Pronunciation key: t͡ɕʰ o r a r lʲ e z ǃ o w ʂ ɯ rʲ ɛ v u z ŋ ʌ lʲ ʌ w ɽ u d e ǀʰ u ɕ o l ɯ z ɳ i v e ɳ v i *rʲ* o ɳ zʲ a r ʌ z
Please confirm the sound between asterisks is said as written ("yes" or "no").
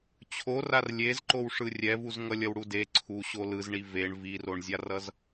no